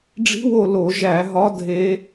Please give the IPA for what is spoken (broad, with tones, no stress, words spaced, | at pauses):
ɖ͡ʐi̤˧˥wo˦˨ lo˧˩˧ʒæ˧˩˧ɦɒ˧˥ dʱe˧˥